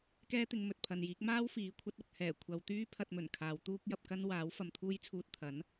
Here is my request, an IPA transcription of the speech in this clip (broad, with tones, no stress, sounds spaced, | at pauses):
k ɛː˥ t̪ ɪ˧ ŋ m ɵ˨ t̚ pʰ ɐ˨ n j iː˨˥ k̚ m aː˥ w f iː˨˥ kʷʰ ɐ˨˥ t̚ ɐ˨ k̚ h ɛː˨˩ kʷʰ ɐ˨˧ w t̪ yː˥ pʰ ɐ˧ t̚ m ɵ˨˩ n kʰ aː˨˧ w t̪ uː˥ k̚ j ɐ˧ p̚ k ɐ˥ n w aː˨˥ w f ɐ˨ m t̪ʰ uː˥ j t͡sʰ uː˧ t̚ t̪ʰ ɐ˨˥ n